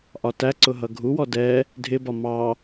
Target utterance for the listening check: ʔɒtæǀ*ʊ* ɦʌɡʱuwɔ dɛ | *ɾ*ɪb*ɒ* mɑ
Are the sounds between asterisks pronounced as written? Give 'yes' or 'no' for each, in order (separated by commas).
yes, no, yes